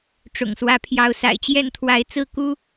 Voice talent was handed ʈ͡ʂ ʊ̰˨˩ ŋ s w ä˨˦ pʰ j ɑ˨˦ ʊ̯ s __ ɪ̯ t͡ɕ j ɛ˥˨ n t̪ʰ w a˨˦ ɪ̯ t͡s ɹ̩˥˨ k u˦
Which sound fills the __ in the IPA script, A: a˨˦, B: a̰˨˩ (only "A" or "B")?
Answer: B